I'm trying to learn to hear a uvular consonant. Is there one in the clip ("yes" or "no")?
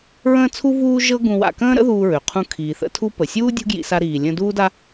yes